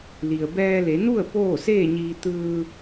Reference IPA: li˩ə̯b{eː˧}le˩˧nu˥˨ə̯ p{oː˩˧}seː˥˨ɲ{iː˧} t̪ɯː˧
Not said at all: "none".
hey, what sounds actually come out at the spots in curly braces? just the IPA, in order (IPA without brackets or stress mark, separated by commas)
ɛː˧, oː˥˨, iː˧